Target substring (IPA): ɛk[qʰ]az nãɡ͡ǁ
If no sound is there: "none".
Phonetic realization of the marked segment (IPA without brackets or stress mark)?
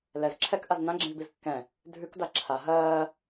ʔ